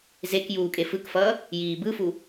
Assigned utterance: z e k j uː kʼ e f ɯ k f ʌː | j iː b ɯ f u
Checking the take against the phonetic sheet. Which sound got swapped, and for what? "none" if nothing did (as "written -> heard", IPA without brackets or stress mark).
none